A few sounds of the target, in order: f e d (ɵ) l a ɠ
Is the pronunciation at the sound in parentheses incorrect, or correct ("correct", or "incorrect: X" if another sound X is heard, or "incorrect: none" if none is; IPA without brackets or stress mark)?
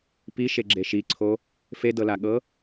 incorrect: ɤ